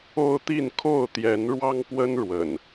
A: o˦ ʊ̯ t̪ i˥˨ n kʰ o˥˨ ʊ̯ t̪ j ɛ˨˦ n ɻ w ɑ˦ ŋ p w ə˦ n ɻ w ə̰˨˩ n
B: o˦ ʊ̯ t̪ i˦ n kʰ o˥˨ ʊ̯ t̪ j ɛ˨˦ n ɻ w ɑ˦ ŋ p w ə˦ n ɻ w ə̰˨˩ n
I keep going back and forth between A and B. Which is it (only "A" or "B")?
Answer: A